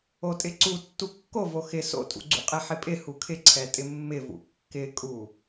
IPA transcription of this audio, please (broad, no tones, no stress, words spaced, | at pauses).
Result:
otʼɪǀu tːukːovo xɪ so̰tʼṵ ɡ͡ǀṵqʼɛħɪpʼɪ hukʰɪǀʰɛ tʼɪmːɪvṵ kːɪkʼu